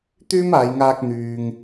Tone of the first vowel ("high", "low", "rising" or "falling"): high